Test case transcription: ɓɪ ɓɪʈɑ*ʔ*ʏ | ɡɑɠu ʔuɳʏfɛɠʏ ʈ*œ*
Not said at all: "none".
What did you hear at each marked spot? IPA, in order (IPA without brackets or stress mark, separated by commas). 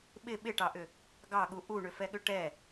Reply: ʔ, ɛ